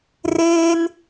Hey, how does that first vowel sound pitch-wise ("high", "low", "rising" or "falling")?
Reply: high